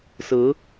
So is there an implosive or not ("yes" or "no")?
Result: no